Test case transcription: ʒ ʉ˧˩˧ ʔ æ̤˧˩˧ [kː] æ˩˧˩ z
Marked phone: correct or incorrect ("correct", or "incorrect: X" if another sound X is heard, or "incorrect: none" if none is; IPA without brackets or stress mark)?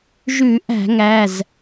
incorrect: ŋ